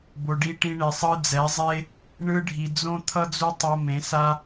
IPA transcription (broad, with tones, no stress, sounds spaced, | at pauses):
b o˨ ɖ i˧ ʈ ĩ˧ ɳ e˨ sˤ ɯ˧ d͡z ɛ˨˦ zˤ e˦ | ɳ ɯ˧ ɖʱ i˨ d͡z õ˦ t̪ʰ ʌ˦ d͡z u˦ tˤ o˧ m ẽ˨˦ s a˦